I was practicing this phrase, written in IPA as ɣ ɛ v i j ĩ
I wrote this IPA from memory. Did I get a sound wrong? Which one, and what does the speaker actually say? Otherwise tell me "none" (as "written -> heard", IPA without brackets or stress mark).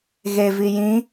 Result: ɛ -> e